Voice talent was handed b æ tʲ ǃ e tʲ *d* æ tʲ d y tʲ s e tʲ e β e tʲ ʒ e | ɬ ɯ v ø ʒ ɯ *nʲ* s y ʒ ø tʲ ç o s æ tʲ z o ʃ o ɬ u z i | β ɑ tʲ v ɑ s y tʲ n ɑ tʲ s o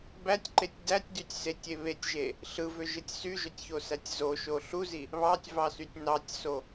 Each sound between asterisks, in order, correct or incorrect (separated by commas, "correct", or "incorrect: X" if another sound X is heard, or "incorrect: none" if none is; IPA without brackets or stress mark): correct, incorrect: tʲ